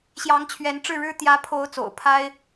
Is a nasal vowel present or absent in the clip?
absent